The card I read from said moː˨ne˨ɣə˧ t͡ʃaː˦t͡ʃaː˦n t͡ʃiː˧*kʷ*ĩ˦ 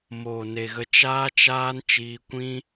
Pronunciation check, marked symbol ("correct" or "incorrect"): correct